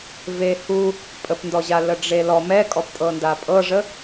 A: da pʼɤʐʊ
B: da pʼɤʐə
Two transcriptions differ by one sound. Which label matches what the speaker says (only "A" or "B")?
B